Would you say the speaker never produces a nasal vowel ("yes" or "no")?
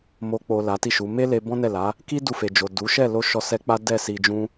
no